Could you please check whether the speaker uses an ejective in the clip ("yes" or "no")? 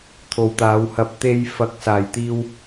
no